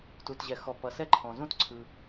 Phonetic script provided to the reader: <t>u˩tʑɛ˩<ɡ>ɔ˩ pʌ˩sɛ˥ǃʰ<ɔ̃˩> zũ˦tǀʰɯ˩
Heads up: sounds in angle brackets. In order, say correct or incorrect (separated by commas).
correct, incorrect, correct